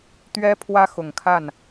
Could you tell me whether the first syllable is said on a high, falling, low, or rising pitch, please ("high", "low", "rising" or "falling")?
high